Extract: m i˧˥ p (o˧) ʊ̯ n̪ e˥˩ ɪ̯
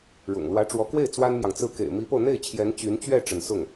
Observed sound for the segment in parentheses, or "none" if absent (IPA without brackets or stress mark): o˧